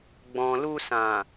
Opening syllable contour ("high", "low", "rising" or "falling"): low